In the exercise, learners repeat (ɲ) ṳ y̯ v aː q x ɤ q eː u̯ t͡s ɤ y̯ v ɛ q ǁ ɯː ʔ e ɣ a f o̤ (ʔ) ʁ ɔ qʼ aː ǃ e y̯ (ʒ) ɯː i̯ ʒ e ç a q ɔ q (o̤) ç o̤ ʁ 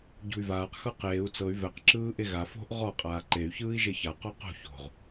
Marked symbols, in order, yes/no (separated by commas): no, yes, no, yes